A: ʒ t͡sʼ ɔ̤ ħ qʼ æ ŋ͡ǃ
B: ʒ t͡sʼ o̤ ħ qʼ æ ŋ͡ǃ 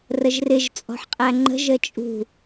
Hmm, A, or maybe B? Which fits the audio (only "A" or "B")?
A